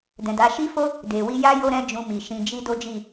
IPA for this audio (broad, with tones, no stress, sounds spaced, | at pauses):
d ɛ̃˨ d a˨˦ ʃ i˦ f o˦ | d e˨ w i˧ j a˦ j o˦ ɾ ɛ̃˦ d͡ʒ ũ˧ m i˨ ʃ ĩ˧ d͡ʒ i˦ d o˦ d͡ʒ i˦˨